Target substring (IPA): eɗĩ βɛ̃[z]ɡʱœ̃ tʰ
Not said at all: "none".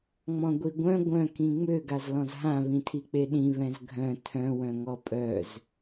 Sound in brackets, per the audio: z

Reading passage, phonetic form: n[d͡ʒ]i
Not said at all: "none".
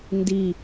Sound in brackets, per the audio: d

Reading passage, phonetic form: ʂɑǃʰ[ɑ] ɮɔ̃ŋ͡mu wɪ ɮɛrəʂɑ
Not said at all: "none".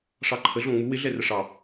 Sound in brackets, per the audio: ə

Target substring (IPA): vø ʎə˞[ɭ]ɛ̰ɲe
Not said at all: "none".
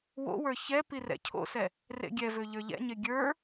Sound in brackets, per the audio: ʎ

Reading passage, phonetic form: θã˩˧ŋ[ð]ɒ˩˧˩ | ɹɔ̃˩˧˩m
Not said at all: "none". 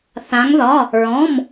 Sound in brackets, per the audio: ð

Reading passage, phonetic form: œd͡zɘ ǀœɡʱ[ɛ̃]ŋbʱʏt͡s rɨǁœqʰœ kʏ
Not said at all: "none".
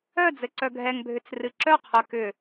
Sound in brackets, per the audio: ɛ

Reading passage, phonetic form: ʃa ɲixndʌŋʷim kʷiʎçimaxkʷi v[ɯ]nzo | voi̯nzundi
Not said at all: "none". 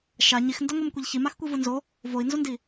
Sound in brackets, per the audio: ɯ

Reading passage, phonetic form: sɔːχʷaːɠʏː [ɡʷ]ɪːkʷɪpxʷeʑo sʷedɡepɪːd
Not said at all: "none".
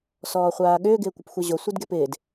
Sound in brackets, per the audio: ɡ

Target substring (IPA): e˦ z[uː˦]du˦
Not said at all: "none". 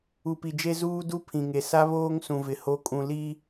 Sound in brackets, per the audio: uː˦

